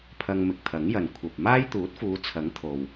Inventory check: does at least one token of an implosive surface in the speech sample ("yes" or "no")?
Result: no